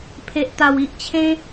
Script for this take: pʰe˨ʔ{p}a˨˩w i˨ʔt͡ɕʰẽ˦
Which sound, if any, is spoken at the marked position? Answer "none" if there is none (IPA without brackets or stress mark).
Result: t̪